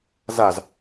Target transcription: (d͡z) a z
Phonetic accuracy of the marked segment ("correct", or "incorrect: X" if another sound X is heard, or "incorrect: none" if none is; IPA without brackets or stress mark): incorrect: z